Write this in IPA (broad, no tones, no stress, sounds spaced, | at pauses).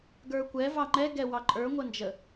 ɡ ə˞ kʷ ɛ v ɑ ŋ͡ǃ ɛ ɡ ɛ w ɑ ǃʼ ə˞ ŋʷ ə n d͡ʒ ə